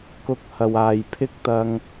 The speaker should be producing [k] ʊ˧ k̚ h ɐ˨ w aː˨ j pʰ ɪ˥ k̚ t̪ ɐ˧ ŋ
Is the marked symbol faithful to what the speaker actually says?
yes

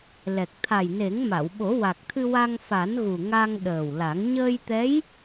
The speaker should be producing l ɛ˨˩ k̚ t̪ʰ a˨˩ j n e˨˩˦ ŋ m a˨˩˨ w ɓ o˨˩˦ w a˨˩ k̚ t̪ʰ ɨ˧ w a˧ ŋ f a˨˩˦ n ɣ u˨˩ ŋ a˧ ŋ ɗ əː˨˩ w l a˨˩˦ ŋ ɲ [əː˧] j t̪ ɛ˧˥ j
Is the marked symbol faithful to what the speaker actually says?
yes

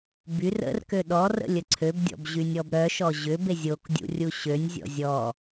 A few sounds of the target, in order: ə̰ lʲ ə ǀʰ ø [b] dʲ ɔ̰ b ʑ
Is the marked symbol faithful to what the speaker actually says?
yes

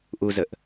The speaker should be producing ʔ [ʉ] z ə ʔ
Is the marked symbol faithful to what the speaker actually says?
no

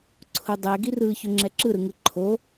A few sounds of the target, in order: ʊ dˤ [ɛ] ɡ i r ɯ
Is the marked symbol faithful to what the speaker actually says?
yes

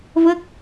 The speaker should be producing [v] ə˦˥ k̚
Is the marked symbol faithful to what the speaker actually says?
yes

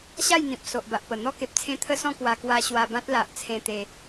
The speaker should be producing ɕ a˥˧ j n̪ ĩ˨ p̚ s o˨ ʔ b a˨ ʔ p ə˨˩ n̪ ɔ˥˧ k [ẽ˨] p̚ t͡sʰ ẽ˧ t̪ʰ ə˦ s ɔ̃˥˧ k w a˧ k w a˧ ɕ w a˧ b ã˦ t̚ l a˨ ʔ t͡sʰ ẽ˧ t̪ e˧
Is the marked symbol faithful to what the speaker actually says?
no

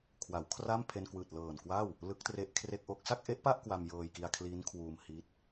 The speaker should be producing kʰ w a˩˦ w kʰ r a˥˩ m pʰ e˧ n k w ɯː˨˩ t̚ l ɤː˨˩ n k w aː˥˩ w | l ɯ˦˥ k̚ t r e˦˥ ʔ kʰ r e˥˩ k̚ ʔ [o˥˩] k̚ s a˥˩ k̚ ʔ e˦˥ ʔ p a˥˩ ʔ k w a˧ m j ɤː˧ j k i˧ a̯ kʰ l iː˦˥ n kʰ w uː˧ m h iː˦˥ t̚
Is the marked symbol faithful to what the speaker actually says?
yes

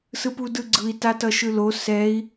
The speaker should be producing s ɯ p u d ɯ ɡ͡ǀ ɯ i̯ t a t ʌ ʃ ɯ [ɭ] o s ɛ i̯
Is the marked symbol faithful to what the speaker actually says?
no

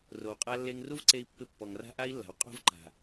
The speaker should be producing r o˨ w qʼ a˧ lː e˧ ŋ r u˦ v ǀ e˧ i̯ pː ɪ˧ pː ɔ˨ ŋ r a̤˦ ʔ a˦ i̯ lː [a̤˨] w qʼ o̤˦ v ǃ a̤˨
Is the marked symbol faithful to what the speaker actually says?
yes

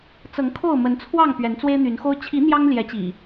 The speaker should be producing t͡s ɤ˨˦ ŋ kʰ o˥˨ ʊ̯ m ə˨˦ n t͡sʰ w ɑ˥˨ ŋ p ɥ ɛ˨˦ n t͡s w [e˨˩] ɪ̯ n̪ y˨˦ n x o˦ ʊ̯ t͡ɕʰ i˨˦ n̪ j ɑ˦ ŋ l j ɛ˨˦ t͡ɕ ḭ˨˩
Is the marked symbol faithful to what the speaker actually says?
no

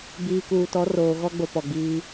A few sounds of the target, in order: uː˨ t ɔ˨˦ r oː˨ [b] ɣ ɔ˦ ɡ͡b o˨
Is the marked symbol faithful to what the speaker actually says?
no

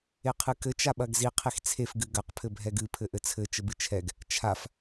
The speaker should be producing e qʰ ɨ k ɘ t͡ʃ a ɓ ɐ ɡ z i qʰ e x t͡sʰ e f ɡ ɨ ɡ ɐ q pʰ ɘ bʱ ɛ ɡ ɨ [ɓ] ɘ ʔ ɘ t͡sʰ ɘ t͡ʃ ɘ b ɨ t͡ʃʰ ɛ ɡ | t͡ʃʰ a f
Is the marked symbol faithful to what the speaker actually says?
no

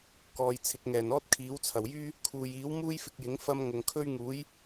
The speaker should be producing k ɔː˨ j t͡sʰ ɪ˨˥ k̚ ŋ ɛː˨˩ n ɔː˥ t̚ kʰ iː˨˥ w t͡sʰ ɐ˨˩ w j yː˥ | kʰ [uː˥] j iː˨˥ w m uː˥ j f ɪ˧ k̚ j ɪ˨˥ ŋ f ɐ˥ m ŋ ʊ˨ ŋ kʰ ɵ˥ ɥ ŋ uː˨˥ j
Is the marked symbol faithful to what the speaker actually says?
no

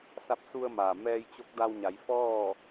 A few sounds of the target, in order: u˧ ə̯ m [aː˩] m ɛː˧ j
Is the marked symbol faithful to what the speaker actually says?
yes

